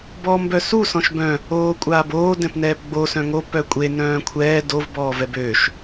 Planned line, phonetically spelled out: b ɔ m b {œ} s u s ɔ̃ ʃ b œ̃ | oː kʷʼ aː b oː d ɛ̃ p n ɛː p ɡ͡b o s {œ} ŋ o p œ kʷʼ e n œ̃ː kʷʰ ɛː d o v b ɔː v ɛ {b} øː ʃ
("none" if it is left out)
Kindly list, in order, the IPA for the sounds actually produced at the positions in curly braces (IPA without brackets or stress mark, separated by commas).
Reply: œ, œ̃, b